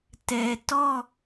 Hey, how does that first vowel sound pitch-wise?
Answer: low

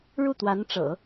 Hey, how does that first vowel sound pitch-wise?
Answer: falling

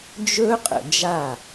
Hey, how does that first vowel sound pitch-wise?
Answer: high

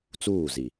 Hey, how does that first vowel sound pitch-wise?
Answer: falling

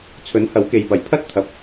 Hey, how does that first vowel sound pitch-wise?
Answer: rising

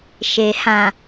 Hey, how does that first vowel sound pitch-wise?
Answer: low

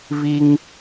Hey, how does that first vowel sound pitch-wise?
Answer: high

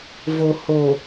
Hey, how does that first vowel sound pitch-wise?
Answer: low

